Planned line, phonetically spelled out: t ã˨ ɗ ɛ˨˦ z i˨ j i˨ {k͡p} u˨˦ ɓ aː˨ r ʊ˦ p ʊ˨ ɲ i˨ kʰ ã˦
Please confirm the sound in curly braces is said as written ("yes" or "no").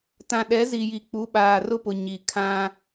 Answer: yes